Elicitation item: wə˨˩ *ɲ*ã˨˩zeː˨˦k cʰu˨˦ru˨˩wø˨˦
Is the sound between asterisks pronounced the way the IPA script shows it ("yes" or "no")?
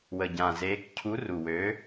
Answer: no